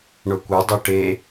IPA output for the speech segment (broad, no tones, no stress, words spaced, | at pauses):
ɳokʷɐ dˤoʈe